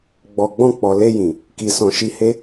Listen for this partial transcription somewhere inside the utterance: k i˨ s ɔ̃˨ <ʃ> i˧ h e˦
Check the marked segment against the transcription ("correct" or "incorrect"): correct